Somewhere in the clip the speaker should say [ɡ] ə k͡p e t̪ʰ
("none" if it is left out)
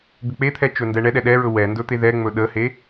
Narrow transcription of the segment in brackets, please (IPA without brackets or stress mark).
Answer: ɡ